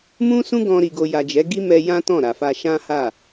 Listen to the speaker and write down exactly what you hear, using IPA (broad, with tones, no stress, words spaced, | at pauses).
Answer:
mũ˦sũ˦ɡɔ̃˧ ɾi˨ɡo˨ja˨ d͡ʒɛ˨˦ɡi˦ mɛ˧ jã˦tɔ̃˦˨ɾa˨fa˧ ʃã˦ha˦˨